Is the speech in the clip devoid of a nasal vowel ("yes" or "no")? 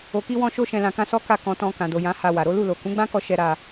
no